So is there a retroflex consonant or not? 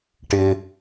yes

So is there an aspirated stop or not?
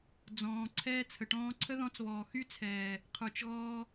yes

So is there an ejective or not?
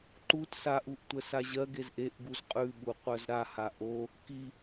yes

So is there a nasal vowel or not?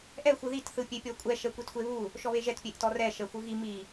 no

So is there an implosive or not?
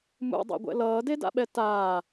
yes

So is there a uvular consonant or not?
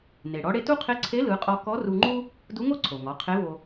yes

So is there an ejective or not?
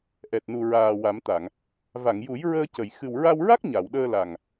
no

